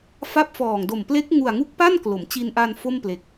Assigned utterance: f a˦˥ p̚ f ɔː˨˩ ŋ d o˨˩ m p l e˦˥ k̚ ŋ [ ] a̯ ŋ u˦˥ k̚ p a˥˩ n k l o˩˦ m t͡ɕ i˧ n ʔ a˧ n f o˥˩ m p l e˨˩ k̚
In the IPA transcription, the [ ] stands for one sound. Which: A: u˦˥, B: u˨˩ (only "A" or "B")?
B